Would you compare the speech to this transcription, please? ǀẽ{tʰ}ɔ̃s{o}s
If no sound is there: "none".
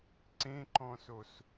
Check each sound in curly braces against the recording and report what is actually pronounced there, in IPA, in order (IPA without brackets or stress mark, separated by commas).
ǃ, o